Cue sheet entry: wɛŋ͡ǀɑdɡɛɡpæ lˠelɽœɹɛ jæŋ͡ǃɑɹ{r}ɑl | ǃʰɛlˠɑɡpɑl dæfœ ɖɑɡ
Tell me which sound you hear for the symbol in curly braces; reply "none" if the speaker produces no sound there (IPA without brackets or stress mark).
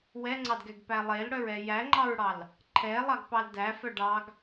ɽ